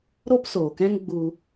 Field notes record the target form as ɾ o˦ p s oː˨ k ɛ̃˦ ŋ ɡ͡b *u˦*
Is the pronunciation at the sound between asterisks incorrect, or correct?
correct